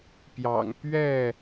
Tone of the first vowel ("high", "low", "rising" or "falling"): low